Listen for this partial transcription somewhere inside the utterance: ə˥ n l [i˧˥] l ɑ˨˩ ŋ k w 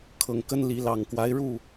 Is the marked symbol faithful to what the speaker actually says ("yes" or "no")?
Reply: yes